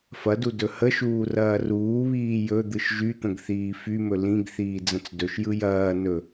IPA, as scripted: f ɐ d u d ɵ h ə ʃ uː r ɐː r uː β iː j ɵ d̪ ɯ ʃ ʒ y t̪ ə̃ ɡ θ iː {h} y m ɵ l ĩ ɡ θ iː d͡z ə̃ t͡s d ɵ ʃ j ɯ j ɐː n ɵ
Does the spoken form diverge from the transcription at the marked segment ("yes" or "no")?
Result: yes